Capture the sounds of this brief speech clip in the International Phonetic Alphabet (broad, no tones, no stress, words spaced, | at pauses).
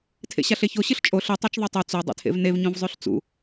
tʰḛɕaɬeço ɕɨɬt͡ʃʼo ɬɨ tˤat͡ʃðˤotˤʉ t͡so dˤḛtʰḛvnev ɲõvzˤʉɬt͡sṵ